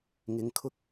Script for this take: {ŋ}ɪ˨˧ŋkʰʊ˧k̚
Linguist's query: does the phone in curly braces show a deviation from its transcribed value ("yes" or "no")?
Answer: no